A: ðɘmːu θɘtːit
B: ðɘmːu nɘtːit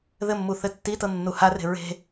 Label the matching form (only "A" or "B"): A